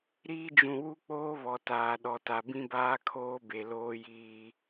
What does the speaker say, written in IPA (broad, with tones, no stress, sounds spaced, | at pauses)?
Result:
ɾ iː˦ d͡ʒ ũ˨ w u˦ k͡p oː˦ β ɔ˨ t aː˨ ɗ ɔ˨ t a˨ b ĩ˦ b aː˦ kʰ oː˦ b e˨ l oː˦ j iː˦